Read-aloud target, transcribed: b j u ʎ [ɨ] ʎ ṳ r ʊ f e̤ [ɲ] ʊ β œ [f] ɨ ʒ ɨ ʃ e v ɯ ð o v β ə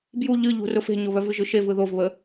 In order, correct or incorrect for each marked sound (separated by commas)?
correct, correct, incorrect